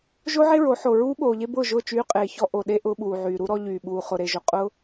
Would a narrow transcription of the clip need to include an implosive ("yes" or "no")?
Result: yes